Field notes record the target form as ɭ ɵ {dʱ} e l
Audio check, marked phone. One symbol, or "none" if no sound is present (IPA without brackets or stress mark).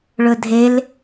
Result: dʱ